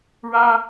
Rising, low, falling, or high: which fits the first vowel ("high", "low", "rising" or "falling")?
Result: high